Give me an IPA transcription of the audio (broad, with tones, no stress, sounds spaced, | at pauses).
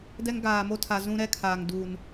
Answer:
d ɛ˦ ŋ ɡ aː˨ m o˦ tʰ a˨ z ũ˦ ɾ ɛ˦ kʰ aː˨ ŋ d u˨ n